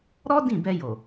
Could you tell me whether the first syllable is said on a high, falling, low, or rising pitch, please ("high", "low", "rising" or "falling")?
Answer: high